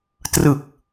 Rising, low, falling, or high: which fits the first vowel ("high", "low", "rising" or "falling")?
low